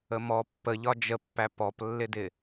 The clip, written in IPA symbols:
əmɔ pːə ʎɒd͡ʒəpːæ pɔplːɪdɪ

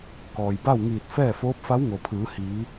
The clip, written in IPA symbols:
kɔː˩jba˥˨wŋiː˧˩t̚ fɛː˥˨foː˧˥p̚fa˧˥w ŋo˩pʰɯː˩˧hiː˩˧

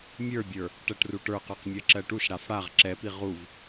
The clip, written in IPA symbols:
mʲə˞bʲə˞ | ʈɜʈruʈə˞qə˞q mʲɜǁɜʈuʃɽaf ɽaʁ ǁɛpi ʁuv

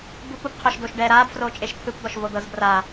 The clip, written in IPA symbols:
bupubqʰoʃ doːʃɖɛːɾaːb froːt͡ʃʼeʃt̪ʰɯp d̪ɔʃvod̪ɤzbra

